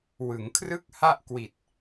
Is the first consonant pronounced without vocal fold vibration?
no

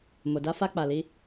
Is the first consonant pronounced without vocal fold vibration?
no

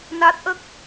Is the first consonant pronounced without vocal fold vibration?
no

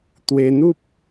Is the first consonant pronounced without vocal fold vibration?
yes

